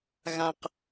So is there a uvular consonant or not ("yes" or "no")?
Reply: yes